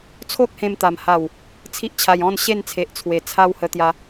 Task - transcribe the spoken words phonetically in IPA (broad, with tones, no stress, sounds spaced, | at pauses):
t͡sʰ o˦ k̚ h ẽ˧ m t̪ a˨˩ m h a˨˩ w | t͡sʰ i˦ ʔ t͡ɕʰ a˧ j ɔ̃˥˧ n ɕ e˥˧ n t͡sʰ e˨ ʔ t͡sʰ w e˨˩ t͡sʰ a˦ w h ə˧ t̪ j a˧